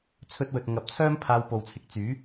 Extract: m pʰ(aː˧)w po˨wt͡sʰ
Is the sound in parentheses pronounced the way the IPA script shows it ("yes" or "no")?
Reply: yes